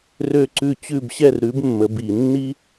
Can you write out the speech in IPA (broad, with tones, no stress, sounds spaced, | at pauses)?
r ø˥˨ ǀ ʉ˥˨ t͡ɕ ʉ˥˨ b ɕ ɛ˥˨ r ɾ ʉ˨˥ b mː ə˨˥ b i˨˩˦ nː i˥